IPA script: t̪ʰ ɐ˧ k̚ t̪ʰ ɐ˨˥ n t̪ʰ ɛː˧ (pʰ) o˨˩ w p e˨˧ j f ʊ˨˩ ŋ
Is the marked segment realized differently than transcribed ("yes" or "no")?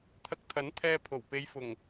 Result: no